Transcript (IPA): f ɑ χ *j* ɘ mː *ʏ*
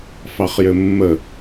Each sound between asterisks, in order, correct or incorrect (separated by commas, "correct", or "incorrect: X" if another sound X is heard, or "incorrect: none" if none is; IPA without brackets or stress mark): correct, incorrect: ə